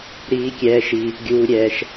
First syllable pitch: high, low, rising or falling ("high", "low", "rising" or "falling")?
low